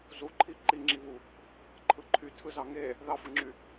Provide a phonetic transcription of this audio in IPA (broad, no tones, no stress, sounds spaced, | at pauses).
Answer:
z u ǃʰ i ǃ i ŋ͡ǁ i β u | ǃʰ ɯ ǃʰ y tʰ ɯ z ɑ ŋ e | ð ɑ f ɯ ŋ͡ǁ y